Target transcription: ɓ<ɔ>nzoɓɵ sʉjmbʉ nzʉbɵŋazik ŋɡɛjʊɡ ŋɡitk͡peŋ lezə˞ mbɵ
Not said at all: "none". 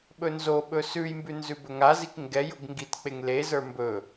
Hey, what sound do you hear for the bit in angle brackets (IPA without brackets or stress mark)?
ɵ